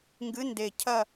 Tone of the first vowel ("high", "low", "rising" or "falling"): rising